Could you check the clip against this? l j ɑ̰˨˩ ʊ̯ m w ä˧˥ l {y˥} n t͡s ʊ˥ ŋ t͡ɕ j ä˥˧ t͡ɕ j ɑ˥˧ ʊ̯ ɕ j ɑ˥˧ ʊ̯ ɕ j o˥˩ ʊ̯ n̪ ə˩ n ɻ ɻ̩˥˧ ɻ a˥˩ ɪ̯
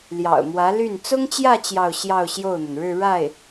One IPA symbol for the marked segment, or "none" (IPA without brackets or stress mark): y˥˩